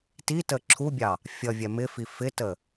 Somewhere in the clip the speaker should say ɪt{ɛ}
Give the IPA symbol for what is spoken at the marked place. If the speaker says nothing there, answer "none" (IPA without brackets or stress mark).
ə